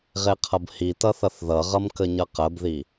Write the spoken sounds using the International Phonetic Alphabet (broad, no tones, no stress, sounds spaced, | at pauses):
ʁ e qʰ ʌ b h i t ʌ θ ʌ θ ð ʌ ʁ ʌ m k ə ɲ ʌ q ə b ð i